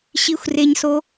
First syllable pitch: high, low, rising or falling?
high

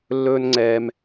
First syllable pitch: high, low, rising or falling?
high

